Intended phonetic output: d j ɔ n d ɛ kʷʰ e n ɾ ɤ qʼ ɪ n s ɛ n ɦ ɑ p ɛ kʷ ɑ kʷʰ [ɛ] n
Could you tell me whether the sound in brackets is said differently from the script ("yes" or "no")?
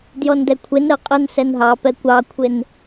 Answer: yes